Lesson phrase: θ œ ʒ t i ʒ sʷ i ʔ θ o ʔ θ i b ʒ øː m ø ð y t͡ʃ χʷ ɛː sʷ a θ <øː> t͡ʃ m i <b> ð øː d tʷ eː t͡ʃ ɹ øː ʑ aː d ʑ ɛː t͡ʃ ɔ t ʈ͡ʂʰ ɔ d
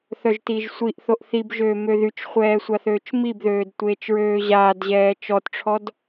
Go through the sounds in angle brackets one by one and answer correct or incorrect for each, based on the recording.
correct, correct

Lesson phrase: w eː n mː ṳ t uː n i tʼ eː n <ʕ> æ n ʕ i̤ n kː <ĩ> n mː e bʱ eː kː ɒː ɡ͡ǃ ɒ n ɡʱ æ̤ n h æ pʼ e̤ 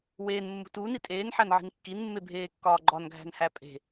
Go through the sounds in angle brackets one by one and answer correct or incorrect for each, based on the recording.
incorrect, incorrect

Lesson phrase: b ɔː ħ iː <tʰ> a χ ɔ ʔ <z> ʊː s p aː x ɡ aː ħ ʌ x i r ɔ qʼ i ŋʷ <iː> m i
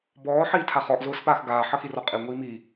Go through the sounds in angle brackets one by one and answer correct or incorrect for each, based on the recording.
correct, correct, correct

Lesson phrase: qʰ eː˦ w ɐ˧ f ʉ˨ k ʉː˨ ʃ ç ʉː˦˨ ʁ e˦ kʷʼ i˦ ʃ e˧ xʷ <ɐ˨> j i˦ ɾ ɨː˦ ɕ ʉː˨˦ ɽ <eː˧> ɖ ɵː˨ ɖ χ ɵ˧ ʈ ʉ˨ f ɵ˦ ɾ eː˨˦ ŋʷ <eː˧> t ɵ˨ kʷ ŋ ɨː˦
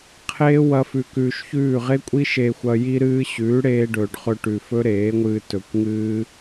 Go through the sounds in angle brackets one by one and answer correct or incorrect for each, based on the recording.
incorrect, correct, incorrect

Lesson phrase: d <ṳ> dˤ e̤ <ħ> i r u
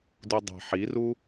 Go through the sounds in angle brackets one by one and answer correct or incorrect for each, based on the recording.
incorrect, correct

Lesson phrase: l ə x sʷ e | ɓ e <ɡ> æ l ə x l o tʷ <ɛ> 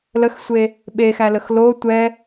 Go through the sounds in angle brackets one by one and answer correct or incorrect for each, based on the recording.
incorrect, correct

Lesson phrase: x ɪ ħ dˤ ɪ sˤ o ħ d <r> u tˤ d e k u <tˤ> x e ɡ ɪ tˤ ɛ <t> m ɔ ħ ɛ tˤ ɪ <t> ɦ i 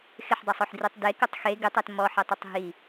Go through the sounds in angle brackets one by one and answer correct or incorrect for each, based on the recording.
correct, correct, correct, incorrect

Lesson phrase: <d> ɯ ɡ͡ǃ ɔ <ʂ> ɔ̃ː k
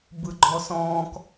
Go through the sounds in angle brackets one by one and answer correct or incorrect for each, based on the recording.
incorrect, incorrect

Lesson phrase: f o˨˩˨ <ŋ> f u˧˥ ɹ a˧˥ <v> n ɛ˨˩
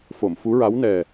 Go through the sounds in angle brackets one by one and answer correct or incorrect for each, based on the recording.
incorrect, incorrect

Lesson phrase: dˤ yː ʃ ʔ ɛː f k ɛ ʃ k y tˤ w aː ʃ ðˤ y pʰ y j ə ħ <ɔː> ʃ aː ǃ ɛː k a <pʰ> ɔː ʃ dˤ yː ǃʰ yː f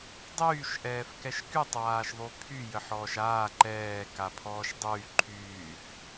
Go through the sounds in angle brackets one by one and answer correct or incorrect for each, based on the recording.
correct, correct

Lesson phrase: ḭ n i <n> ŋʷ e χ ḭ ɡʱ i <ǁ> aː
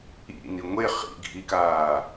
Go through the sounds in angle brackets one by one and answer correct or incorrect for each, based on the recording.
incorrect, incorrect

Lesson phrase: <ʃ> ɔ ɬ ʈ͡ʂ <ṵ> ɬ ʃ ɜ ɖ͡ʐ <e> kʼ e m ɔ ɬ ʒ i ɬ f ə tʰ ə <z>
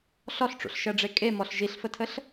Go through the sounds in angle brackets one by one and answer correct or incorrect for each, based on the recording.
incorrect, correct, correct, incorrect

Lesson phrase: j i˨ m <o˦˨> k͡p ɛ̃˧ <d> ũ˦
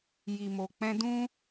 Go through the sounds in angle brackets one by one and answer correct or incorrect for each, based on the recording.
incorrect, correct

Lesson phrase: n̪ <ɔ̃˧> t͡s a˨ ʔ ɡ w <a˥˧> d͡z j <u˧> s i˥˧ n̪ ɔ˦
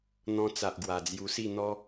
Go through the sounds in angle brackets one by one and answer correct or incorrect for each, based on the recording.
correct, incorrect, correct

